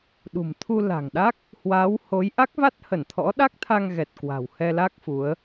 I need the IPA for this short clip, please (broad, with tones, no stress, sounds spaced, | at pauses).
ɗ ṳ˨˩ m t̪ʰ u˧ l a̤˨˩ ŋ ɗ a˦˥ k̚ | h w a˨˦ w h o˨˦ j ʔ a˦˥ k̚ v a˦˥ t̚ h ə˧˩ n t̪ʰ ɔ̰˧˥ ɗ a˦˥ k̚ t̪ʰ a˧ ŋ ɣ ɛ˨˩ t̚ k w a̤˨˩ w h ɛ˧ l a˦˥ k̚ f u˨˦ ə̯